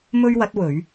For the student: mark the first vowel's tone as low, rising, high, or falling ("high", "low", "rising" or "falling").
high